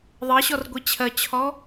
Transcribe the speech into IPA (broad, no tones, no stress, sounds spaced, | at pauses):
ðˤ ɜ ɕ ɔ r ɡʷ i t͡ɕʰ ɜ t͡ɕʰ ɔ